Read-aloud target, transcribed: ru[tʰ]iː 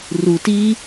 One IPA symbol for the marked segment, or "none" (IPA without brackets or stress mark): t